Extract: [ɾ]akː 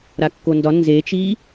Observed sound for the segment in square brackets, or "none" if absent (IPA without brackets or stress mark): ɾ